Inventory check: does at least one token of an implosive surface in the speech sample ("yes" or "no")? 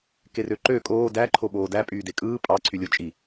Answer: yes